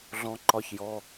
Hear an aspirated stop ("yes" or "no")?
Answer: no